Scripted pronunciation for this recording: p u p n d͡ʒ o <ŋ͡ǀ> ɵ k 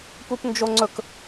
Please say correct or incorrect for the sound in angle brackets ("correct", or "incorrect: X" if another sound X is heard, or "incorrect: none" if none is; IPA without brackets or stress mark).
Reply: correct